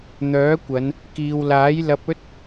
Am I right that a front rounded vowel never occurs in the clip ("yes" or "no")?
no